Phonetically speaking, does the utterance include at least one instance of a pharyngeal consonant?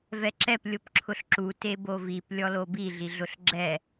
no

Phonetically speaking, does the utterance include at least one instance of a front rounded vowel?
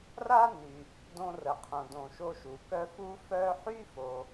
yes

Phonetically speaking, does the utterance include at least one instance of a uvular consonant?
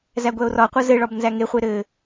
yes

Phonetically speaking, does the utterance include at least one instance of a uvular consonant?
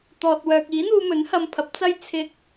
no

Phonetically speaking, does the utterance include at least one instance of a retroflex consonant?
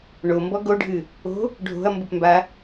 yes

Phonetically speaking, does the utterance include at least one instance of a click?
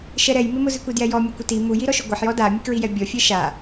no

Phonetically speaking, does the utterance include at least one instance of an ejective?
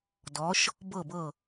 no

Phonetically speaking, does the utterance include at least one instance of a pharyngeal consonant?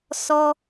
no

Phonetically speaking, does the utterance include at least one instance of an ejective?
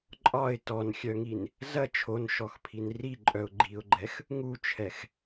yes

